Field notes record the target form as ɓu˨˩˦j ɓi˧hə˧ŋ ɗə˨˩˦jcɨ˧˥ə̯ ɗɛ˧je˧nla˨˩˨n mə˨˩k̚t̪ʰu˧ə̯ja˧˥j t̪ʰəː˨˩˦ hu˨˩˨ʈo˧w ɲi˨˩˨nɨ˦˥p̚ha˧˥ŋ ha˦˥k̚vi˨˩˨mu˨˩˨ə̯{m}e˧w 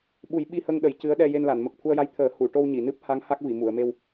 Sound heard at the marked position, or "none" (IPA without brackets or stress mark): m